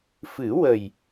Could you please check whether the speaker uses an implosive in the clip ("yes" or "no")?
no